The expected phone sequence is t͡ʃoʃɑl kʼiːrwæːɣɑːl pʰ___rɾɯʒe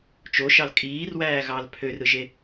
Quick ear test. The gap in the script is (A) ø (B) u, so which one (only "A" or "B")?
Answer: A